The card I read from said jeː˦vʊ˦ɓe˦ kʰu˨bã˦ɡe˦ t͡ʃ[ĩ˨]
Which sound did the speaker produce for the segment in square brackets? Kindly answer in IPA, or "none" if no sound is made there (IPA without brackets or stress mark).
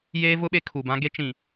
ĩ˨